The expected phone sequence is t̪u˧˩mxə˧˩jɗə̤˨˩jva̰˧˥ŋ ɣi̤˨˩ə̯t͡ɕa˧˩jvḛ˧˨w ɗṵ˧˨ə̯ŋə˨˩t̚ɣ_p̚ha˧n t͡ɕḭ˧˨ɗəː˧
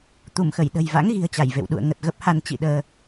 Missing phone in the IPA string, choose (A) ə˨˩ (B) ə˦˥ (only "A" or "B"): B